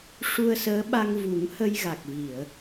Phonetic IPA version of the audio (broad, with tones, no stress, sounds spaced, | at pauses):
ʂ u˧ ə̯ s əː˧˥ ɓ a˧ ŋ v u˨˩˦ ŋ h ə˧ j ɣ a˨˩ k̚ v i˨˩˨ ə̯